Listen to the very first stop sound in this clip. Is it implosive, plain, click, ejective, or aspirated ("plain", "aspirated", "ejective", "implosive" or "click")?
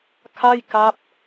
aspirated